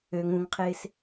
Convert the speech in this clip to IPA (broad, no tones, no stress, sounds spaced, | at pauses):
ø ŋ ũ ŋ qʰ ɪː s